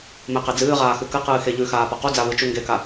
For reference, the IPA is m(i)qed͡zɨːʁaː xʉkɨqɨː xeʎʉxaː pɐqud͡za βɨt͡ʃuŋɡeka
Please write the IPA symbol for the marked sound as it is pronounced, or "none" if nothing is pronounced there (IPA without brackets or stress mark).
e